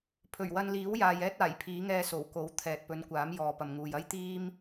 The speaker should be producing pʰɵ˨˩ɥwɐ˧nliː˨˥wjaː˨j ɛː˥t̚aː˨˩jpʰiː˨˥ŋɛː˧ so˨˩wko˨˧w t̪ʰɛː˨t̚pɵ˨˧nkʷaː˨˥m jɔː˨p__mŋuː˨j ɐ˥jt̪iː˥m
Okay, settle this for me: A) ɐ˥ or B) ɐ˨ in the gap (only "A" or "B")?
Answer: B